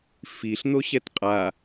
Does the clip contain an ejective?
yes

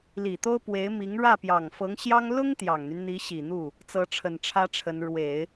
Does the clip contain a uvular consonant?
no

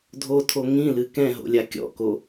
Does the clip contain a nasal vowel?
yes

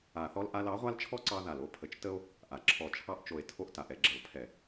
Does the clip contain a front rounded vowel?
no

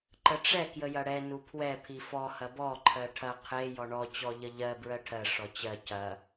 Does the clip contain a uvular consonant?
yes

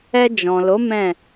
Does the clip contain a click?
no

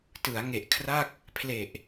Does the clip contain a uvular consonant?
no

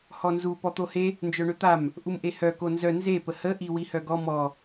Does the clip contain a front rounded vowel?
yes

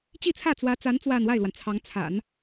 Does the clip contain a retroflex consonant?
no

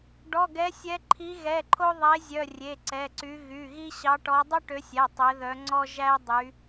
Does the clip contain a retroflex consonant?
yes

